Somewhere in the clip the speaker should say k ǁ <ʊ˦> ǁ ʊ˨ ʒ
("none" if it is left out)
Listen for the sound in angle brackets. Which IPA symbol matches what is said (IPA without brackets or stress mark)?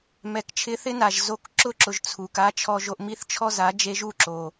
ʊ˦˨